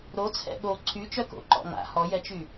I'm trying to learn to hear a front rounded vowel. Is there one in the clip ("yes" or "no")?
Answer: yes